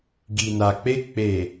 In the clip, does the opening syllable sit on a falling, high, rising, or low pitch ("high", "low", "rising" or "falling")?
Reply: low